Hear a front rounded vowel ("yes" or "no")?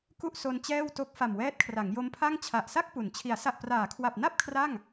no